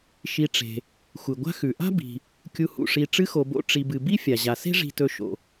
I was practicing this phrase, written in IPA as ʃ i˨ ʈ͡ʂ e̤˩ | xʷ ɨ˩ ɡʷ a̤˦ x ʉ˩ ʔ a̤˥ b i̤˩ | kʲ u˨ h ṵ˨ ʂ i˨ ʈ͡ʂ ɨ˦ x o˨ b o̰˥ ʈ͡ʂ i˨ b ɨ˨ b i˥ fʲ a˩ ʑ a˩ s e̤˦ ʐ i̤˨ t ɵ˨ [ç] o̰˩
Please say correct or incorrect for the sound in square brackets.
incorrect